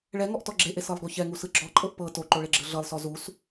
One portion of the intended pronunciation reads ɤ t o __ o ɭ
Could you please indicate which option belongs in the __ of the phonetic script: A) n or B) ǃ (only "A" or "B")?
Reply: B